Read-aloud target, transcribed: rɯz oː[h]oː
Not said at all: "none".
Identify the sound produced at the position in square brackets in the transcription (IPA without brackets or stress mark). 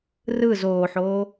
ħ